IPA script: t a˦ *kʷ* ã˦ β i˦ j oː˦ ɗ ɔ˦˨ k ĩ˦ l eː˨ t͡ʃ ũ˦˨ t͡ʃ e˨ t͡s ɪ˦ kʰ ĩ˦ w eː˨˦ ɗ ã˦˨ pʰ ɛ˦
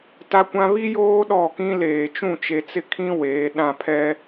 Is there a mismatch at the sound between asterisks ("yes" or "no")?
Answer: no